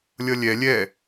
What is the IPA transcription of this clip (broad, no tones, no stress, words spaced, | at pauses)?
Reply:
lʲʌlʲɛ lʲɛ